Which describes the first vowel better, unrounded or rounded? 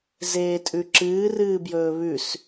unrounded